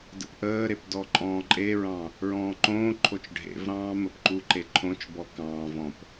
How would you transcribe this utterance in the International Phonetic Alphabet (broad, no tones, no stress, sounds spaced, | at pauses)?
d ə̰ p ʔ əː ɾ e p d ɔ ǃʼ ɔ̃ː ǃʼ e ɹ ɑ̃ | ɹ ɔ̃ː ǃ õː ǃʰ o t͡ʃ ɖʱ ḛ v ɾ ɑ̃ː m ə p ǃ u ǃ e ǃʰ õ t͡ʃ b ɔ k ɑ̃ː v ɔ̃ p